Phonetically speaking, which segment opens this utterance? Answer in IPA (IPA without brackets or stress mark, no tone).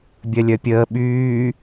bʲ